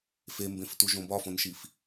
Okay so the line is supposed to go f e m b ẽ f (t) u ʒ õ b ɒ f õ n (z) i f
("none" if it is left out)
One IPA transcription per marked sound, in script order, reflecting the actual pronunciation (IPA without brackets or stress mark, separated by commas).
t, ʃ